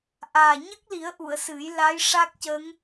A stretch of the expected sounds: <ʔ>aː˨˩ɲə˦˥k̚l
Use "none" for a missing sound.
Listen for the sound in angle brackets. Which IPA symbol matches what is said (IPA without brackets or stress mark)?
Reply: ʔ